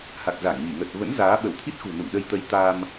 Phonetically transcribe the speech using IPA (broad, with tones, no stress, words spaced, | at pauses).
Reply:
ha˨˩k̚za˧˩ŋɲi˧˩ ŋə˨˩t̚və̰˧˥n zaː˨˦ ɓə˧˩wt̪ʰi˦˥t̚xṳ˨˩ nṵ˧˨ŋɗə˧jt̪ə˧j t̪a˧m